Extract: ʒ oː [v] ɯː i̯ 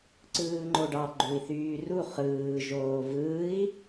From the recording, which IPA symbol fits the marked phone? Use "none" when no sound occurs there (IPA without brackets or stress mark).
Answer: v